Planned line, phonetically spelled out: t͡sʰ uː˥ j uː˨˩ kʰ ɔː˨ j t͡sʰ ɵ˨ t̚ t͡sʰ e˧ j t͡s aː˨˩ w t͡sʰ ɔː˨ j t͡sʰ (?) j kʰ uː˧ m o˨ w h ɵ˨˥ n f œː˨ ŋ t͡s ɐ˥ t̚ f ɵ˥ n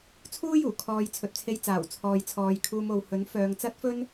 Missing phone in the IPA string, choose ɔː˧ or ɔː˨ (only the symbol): ɔː˨